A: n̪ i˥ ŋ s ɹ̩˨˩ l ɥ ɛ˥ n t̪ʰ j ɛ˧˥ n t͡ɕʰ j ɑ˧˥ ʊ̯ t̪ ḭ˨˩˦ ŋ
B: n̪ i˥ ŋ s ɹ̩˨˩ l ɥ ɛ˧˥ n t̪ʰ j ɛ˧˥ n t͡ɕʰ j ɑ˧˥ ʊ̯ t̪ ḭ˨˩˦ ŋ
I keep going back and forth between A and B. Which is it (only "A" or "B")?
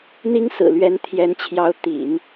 B